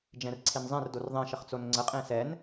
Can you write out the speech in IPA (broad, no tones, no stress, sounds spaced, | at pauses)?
d͡ʒ ɛ̃ r ǀʰ e n zˤ ɛ̃ r d o r ðˤ ɛ̃ ʃ ə χ t͡s o n ŋ͡ǀ ə qʼ ẽ s ɛ n